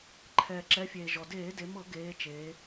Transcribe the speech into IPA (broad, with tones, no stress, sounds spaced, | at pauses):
ǃʰ ɛː˩ ǁ ɛ˩˧ fʲ eː˩ ʒ ɔ˩ d eː˧˩˧ d e˩˧ m ɤ˧˩˧ ɡ eː˩˧ t͡ʃ eː˩˧